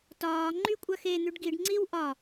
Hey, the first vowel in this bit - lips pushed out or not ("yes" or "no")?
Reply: yes